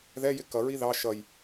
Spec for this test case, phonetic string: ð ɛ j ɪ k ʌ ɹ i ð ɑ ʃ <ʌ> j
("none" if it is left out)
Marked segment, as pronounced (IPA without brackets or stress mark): ʌ